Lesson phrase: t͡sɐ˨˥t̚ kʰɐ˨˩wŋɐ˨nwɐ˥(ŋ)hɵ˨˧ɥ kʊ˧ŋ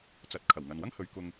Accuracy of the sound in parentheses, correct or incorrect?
correct